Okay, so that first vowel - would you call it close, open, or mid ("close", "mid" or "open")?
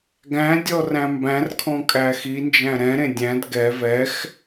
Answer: open